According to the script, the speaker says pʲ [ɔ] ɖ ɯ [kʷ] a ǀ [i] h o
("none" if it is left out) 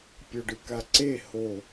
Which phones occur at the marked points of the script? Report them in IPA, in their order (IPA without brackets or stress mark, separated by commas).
ɔ, k, e